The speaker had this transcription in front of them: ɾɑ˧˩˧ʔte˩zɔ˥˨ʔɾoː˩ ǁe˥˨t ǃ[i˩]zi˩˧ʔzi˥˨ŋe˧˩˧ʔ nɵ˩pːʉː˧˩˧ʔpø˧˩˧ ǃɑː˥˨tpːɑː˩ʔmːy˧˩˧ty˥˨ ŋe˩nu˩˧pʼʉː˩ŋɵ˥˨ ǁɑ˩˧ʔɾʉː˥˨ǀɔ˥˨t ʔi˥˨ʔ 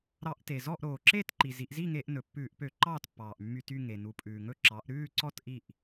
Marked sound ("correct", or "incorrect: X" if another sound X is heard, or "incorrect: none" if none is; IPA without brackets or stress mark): correct